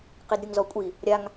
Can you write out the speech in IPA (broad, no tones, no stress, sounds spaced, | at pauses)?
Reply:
q i d ɾʲ u ŋ z ɔ kʷʼ i | ɾʲ a ŋ